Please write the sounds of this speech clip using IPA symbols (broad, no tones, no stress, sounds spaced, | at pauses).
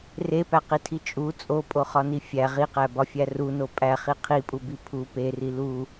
r e p æ q i tʰ i t͡ʃʼ u t͡sʼ o pʼ o χ ɒ n i fʲ æ ʁ i q æ b ɒ fʲ æ r u n o pʼ æ χ i qʰ i pʼ u b i pʰ u p e r i l u